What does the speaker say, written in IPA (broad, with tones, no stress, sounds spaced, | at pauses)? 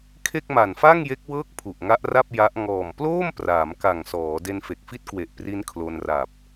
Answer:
kʰ e˥˩ k̚ m a˨˩ n f a˥˩ ŋ j e˦˥ k̚ w ɤː˥˩ k̚ pʰ u˨˩ ʔ ŋ a˦˥ ʔ r a˥˩ p̚ j a˦˥ ʔ ŋ ɔː˨˩ m p l oː˥˩ m p r aː˩˦ m k a˨˩ ŋ s ɔː˩˦ d e˧ n f e˨˩ k̚ f i˦˥ t̚ k w e˨˩ ʔ p r i˦˥ n kʰ l o˧ n r a˨˩ p̚